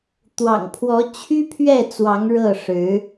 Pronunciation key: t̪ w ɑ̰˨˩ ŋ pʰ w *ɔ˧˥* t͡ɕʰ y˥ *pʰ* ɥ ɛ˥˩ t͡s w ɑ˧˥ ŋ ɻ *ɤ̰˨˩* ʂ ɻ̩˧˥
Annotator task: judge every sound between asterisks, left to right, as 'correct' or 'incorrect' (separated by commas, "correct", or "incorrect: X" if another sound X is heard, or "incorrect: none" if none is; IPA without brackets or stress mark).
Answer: correct, correct, incorrect: ɤ˥˩